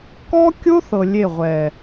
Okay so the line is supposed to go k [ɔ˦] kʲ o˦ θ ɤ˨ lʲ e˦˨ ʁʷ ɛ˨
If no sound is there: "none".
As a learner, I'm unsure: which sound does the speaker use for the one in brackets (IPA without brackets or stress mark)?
ɔ˦